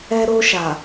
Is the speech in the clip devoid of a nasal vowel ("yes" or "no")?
yes